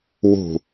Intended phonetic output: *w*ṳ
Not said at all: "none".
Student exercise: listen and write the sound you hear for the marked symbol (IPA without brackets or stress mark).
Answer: w